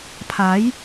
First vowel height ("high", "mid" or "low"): low